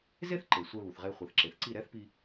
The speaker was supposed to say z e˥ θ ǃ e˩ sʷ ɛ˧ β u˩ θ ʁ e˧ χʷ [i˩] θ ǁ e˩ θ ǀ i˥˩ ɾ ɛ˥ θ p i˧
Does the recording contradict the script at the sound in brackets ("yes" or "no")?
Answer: yes